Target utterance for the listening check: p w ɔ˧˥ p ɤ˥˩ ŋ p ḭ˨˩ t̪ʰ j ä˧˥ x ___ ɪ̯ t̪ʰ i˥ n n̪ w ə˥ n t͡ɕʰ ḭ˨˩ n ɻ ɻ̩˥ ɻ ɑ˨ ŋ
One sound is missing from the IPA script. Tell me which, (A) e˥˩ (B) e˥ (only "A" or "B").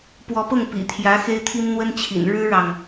B